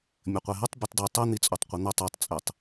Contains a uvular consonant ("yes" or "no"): yes